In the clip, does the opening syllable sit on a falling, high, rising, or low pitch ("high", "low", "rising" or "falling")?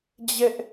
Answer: high